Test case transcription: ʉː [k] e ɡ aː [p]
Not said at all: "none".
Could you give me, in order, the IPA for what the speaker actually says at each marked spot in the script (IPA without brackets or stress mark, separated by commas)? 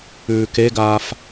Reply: k, f